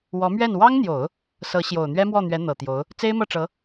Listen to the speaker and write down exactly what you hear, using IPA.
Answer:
w ɔ˧˥ m ɥ ɛ˥˩ n w ɑ˥ ŋ n̪ j o˨˩˦ ʊ̯ | s ɤ˧˥ ɕ j o˨˩ ʊ̯ n̪ ɥ ɛ˥ m w ɔ˥˩ n̪ ɥ ɛ˧˥ n̪ ɤ˨˩ t̪ j o˧˥ ʊ̯ | t͡s e˥ ɪ̯ m ɤ˥˩ ʈ͡ʂ ɤ˧˥

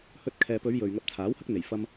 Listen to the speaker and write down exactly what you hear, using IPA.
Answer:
h ɵ˧ t̚ kʰ ɛː˨ p ɵ˨˧ ɥ j ɵ˨ ɥ ŋ ɐ˧ p̚ t͡sʰ aː˨˥ w h ɐ˥ k̚ n̪ e˨˩ j f ɐ˧ m

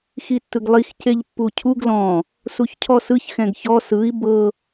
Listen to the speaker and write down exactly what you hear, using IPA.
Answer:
x i tː ɯ ɡ lˠ i x c e ʎ pː u cʰ u ɡ l ɔ̃ | s u ç cʰ ɔ s ɯ ç x ɛ̃ ɡ ç ɔ s ɯ i̯ b ɤ

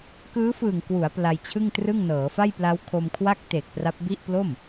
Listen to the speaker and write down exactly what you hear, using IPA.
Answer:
k ɯː˦˥ f ɯː˨˩ ŋ k w u˩˦ a̯ p l a˧ j t͡ɕʰ ɯ˥˩ ŋ t r ɯ˥˩ ŋ n ɤː˩˦ f a˥˩ j p l a˦˥ w kʰ o˧ m kʰ w a˥˩ k̚ t eː˨˩ k̚ p r a˦˥ p̚ b i˥˩ ʔ p l o˥˩ m

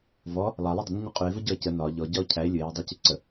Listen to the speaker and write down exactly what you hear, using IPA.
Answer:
v ɔ | lˠ a lˠ u dˤ ə n ə ɲ ɯ qʼ y e̯ v ə ɟ ɔ e̯ c ə n ɒ ʎ ɔ ɟ ɒ o̯ cʰ æ e̯ lʲ ɯ e̯ j ɒ dˤ æ c y ǀ ə

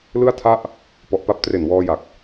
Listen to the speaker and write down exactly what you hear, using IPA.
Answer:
l ɯ˥˩ a̯ tʰ a˥˩ ʔ | p ɔ˨˩ ʔ p a˦˥ p̚ t r e˨˩ n w ɔː˧ j a˨˩ k̚

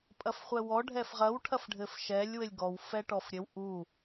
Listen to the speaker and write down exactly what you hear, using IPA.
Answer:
pʼ ɐ f χʷ ɛ w ɔ ɖʱ ɛ f ʁ ɐ w ʈʰ ɐ f ɖʱ ɘ f ʃ ɛ lʲ w ɘ lʲ ɡ ɔ w f ɛ ʈ ɔ f ɾʲ ɘ w ʔ u

